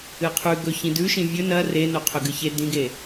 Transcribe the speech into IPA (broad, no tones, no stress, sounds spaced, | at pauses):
ɨ qʰ ʉ ɡ ɵ ç ĩ d ʉ ʃ ĩ vʲ ɵ n ɐ r e n o qʰ ɵ ɡ ɨ ç e d ĩ ɡ e